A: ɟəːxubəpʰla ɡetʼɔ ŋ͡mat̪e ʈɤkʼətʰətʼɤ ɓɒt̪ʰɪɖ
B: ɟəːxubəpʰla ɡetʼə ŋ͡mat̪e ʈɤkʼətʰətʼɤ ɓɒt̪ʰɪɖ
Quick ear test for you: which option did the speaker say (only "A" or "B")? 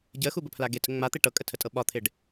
B